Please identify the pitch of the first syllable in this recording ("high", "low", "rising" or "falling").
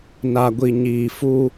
low